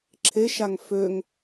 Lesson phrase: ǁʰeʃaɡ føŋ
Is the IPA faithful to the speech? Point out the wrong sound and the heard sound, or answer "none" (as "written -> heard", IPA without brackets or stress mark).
ɡ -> ŋ